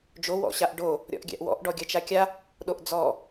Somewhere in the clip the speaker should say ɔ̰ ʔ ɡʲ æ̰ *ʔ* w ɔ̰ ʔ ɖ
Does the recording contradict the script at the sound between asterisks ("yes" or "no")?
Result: no